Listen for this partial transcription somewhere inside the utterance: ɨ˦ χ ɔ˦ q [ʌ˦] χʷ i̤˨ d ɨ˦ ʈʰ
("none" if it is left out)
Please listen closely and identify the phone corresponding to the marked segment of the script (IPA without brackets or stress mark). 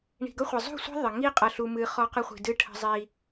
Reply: ə˦